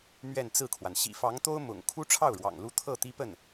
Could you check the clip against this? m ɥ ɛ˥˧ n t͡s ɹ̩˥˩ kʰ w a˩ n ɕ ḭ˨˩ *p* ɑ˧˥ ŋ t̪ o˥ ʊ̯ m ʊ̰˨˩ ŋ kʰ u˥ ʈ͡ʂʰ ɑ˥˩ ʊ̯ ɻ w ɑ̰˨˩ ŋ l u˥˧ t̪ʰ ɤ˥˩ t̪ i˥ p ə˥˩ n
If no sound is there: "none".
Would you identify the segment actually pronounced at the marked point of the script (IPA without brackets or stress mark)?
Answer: f